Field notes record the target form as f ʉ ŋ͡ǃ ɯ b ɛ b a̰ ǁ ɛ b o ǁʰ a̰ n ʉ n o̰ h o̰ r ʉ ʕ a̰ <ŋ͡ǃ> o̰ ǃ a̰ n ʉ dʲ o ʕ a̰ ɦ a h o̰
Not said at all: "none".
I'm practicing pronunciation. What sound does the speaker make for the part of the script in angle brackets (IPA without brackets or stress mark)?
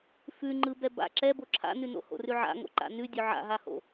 ŋ